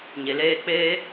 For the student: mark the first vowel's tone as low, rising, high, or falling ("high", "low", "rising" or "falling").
low